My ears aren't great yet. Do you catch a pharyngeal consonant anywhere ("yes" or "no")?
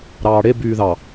no